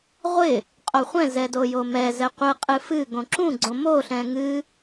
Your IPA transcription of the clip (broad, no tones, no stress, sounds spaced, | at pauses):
ʁʷ ɪ | qʼ o χʷ ɛ̃ z ɛ d o j o m ɛ z ɛ qʷ ɨ qʼ ɨ f ɨ ɡ õ ǁ ũ ɡ͡ǀ õ m o ɬ ɛ̃ ŋ ɨ